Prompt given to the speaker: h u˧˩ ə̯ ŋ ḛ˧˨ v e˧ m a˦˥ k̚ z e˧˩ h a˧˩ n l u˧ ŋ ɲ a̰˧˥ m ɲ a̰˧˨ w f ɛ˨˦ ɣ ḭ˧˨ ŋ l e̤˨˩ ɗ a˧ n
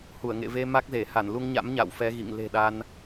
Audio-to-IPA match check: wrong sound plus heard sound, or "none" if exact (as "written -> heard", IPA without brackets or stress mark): none